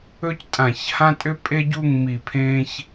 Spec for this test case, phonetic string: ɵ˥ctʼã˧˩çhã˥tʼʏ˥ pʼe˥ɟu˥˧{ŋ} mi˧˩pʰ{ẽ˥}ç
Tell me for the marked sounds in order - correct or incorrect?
correct, correct

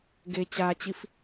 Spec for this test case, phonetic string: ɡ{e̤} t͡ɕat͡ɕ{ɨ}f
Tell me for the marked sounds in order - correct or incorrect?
incorrect: e, incorrect: i

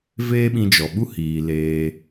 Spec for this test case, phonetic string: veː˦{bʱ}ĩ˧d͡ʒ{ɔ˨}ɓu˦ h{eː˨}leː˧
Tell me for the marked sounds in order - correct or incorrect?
incorrect: ɓ, correct, incorrect: iː˨

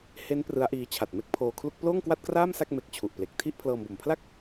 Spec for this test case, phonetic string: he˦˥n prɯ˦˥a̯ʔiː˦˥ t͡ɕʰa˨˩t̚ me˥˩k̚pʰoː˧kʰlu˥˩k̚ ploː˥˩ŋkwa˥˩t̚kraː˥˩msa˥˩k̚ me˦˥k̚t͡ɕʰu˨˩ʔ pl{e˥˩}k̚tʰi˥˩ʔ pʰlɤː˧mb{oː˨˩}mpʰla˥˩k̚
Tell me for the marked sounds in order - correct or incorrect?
incorrect: e˨˩, incorrect: o˨˩

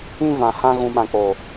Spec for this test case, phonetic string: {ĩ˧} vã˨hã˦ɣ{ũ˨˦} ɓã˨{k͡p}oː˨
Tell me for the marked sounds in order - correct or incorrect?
incorrect: ĩ˦, correct, correct

